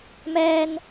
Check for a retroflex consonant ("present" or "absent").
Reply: absent